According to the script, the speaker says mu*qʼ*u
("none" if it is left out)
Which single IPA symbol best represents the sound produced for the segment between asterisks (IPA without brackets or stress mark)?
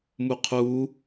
qʰ